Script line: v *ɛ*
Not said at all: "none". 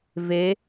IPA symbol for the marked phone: e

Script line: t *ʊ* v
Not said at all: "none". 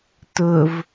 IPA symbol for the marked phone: ʊ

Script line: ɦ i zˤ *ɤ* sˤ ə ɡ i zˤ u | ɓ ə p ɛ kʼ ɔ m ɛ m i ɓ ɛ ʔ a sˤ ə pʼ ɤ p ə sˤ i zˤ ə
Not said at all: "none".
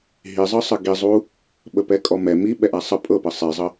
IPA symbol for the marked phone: ɤ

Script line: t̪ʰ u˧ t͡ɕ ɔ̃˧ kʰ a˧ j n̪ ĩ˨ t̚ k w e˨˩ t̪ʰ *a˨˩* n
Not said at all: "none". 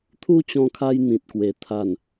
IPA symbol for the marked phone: a˨˩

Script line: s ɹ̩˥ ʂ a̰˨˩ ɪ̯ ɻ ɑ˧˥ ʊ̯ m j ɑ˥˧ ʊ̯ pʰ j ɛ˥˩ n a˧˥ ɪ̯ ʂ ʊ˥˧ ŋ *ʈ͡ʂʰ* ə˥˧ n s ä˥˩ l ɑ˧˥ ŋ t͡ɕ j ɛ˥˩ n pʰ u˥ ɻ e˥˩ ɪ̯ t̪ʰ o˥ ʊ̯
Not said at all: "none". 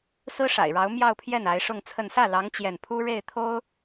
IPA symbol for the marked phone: t͡sʰ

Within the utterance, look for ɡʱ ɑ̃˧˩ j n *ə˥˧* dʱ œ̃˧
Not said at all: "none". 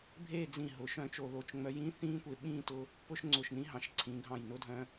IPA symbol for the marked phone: ʊ˥˧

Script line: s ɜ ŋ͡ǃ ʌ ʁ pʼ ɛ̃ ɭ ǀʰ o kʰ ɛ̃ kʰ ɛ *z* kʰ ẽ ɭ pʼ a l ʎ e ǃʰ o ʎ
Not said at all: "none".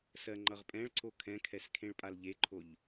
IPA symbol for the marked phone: s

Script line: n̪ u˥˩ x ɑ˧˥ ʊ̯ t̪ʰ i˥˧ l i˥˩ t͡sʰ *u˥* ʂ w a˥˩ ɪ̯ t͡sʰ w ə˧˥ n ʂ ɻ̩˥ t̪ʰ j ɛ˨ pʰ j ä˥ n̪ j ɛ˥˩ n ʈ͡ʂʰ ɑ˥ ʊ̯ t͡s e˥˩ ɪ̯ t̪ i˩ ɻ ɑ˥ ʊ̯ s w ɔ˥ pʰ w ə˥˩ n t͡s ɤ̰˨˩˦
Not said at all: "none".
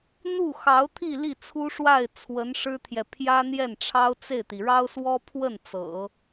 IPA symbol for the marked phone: u˥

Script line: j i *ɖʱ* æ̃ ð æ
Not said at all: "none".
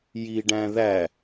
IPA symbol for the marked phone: ɖ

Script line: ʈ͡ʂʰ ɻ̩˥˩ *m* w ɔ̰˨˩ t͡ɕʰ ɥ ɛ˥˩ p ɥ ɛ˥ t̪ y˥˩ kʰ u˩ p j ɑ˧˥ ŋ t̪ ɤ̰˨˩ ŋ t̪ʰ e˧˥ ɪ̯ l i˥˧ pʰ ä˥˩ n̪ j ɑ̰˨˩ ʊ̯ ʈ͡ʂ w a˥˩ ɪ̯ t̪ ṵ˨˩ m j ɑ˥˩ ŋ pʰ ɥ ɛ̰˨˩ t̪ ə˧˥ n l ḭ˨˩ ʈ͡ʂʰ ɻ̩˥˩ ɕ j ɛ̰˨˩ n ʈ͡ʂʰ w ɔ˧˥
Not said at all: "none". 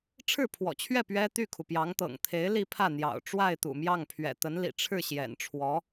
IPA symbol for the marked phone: pʰ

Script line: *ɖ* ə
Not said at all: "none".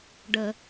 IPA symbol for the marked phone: ɖ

